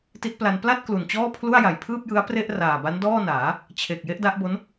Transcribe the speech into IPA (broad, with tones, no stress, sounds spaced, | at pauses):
t i˦˥ t̚ p l a˧ n p l a˥˩ t̚ k l u˨˩ n t͡ɕ ɔː˥˩ pʰ l u˥˩ a̯ j a˨˩ j pʰ ɯː˥˩ p̚ j ɯ˦˥ a̯ p r e˥˩ ʔ r aː˨˩ b a˦˥ n d ɔː˥˩ n aː˩˦ | t͡ɕʰ e˨˩ k̚ j e˦˥ ʔ d a˦˥ ʔ b o˦˥ n